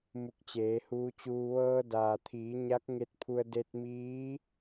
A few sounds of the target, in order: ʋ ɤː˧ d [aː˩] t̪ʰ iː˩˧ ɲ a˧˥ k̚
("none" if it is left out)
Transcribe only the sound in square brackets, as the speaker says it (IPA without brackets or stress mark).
aː˩